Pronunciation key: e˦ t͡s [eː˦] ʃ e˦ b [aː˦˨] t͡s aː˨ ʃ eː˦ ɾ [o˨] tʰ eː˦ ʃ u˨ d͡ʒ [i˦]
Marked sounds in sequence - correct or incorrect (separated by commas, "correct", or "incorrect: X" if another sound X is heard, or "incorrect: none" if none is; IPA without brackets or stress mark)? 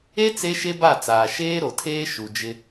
incorrect: e˦, incorrect: a˦˨, correct, incorrect: ɪ˦